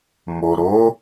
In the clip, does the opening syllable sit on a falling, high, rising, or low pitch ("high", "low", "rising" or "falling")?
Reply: low